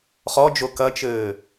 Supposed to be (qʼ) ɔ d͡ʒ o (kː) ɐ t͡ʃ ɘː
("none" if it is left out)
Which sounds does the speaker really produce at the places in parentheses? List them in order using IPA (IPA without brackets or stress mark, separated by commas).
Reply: χ, k